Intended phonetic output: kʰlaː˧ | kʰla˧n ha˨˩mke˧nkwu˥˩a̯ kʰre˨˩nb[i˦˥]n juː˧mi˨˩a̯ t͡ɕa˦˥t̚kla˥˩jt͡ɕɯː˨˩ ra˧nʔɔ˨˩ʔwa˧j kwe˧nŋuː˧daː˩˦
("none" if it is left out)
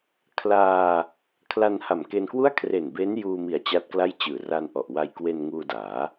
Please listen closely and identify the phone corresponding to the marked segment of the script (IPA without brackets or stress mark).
e˦˥